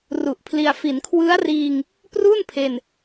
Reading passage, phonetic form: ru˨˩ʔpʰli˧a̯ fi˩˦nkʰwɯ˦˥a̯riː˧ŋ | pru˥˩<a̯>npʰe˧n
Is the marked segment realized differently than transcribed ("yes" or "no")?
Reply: yes